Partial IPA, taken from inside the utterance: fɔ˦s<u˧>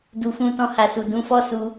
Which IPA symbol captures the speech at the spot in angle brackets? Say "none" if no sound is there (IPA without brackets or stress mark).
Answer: u˧